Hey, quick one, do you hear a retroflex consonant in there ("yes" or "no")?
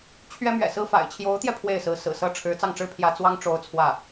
yes